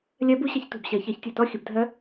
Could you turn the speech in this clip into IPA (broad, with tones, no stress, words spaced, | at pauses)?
lʲɜ˦˥b u˦˥ɕə˧˥˧çtṳ˧˩b ɕɜ˨˩˦çɜ˨˩˦çtʲo˧˩tɔ˦˥ xʲə˨˩˦bdʱɜ˦˥